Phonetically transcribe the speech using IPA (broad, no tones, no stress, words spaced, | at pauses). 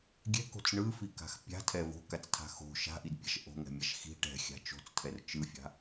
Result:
ɡʲɛ̤ko̤t͡s ɳɯfika̤x pʲa̤tʰɛ vo̤kat͡stʰa̤ xo̤ ʃa̤ʔidpʲa̤ʃ ʔo̤ŋɛ̤mʲaʃ xi̤ ʈɛ̤xʲa̤ t͡ʃo̤t͡stʰɛr t͡ʃɯfʲa̤